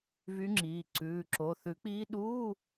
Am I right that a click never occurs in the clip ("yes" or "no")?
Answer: no